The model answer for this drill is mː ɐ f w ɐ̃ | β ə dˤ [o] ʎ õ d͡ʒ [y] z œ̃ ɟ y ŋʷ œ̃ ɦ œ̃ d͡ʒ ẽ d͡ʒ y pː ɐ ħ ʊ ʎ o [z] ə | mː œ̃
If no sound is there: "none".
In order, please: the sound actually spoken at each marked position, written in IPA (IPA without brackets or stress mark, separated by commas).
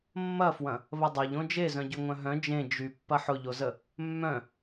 o, e, z